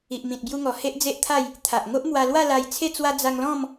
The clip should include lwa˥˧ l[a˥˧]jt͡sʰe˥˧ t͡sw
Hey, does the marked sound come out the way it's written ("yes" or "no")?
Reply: no